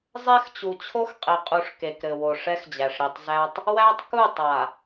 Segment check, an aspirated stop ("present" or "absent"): present